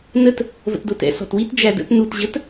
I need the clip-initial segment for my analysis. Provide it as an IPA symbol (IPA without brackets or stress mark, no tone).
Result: n